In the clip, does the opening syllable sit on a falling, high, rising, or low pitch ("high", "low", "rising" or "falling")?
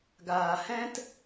low